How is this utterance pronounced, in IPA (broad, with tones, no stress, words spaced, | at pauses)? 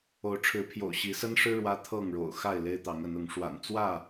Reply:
o˨˦ʊ̯ʈ͡ʂʰɻ̩˨˦pʰjo̰˨˩ʊ̯ ɕi˨˦sə˦nʂɻ̩˦ ɻwä˦t̪ʰɤ˥˨ŋɻo̰˨˩ʊ̯xa˥˨ɪ̯ le˦ɪ̯t̪ɑ˨˦ŋə˨˦nʊ˨˦ŋ ʂwa̰˨˩n t͡swä˥˨